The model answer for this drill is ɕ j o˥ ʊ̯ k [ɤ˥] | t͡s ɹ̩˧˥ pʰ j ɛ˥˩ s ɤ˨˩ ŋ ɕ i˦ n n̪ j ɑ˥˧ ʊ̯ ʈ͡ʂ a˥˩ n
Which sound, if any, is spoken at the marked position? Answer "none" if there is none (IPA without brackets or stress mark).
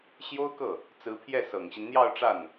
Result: ɤ˥˩